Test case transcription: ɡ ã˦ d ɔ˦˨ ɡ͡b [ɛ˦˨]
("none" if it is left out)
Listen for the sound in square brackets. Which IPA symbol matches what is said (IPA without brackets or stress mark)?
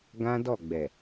ɛ˨